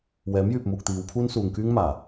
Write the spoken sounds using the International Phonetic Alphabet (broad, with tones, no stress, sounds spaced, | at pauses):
w ɛː˨˥ m j yː˨ p̚ m uː˨ k̚ t̪ iː˨˧ w pʰ uː˥ n s uː˨ ŋ k yː˥ ŋ m aː˨˩